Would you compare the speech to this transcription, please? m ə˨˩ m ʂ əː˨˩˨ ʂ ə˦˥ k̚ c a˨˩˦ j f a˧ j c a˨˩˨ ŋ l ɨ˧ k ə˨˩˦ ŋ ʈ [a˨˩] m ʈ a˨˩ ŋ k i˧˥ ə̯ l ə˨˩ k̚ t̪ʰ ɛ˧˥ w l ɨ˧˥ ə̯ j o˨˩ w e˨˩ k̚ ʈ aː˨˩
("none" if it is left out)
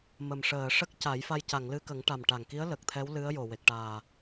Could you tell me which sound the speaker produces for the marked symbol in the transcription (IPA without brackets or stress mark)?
a˨˩